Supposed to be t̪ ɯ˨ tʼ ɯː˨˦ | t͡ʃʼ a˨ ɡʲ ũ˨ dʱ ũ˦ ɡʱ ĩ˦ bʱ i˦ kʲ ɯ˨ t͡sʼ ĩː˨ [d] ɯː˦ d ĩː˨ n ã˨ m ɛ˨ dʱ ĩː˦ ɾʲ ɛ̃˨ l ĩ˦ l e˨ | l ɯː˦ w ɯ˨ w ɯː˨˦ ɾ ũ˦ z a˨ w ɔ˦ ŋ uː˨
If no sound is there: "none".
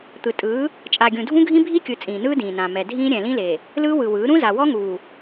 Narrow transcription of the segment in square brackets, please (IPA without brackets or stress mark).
n